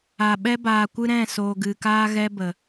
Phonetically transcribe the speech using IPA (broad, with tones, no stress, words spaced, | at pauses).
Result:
a˨ ɓɛ˦baː˨kʷɨ˦ ɾɛ̃˦˨soː˨ɡɨ˨kaː˦ ɣɛ˦bə˨